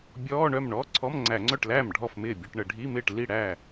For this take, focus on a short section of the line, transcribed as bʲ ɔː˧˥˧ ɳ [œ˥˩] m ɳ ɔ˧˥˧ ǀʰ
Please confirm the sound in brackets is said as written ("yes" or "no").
yes